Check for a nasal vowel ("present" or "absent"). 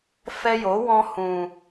present